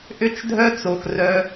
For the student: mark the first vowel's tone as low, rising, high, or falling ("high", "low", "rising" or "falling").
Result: falling